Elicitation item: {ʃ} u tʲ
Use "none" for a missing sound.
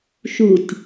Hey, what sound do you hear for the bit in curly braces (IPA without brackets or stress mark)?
ʃ